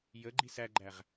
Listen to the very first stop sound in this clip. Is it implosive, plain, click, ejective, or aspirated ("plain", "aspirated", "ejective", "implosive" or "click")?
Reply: click